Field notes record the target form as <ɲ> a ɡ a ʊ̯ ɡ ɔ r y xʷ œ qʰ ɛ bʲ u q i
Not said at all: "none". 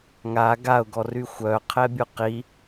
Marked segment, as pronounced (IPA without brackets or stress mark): ŋ